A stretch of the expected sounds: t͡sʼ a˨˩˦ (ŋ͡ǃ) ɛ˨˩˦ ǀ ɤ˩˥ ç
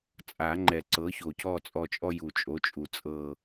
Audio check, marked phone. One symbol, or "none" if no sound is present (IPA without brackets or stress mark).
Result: ŋ͡ǃ